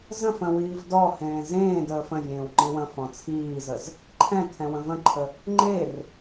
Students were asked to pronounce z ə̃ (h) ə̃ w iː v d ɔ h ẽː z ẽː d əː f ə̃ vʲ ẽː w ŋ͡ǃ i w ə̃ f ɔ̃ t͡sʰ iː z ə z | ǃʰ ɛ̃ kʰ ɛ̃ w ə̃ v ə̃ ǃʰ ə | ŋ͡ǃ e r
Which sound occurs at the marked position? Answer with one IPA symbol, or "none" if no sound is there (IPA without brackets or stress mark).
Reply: f